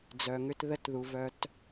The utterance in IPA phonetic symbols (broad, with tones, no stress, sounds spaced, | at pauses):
d͡z œ˨ ŋ ʏ˦ t ð ə˦˨ t ð u˨ v œ˧ t